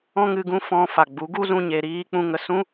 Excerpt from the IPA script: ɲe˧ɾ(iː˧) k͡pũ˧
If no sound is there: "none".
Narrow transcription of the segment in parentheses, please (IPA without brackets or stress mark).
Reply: iː˦